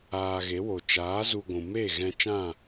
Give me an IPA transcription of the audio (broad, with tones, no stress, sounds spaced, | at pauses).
aː˧ ɣ e˨˦ w o˨ t͡ʃ aː˨˦ z u˧ ɡʷ ũ˨ m eː˦˨ ɣ ɛ̃˧ t͡ʃ ã˦˨